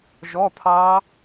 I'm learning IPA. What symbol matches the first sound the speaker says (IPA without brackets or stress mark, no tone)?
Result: ʒ